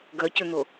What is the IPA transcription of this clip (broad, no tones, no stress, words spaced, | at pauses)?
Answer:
ɡœcøn̪o